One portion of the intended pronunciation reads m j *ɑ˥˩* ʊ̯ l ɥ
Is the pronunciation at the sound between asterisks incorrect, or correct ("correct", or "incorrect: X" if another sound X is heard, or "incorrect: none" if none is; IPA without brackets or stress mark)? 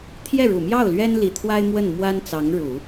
correct